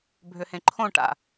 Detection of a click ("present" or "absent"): present